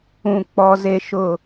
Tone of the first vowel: low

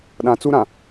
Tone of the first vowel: low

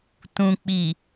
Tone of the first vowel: low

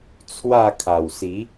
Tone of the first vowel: falling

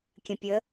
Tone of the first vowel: low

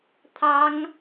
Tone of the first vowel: high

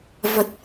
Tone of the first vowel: low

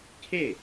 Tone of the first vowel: falling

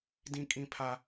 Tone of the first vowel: high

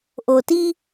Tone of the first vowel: low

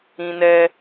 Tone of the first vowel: high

